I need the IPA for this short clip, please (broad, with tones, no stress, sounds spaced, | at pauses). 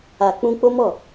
a˨ k͡p ũ˧ k͡p o˦ m ɔ˦˨